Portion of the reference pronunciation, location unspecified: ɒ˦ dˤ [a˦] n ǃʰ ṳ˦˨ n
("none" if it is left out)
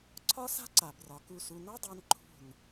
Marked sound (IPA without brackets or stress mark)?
a˧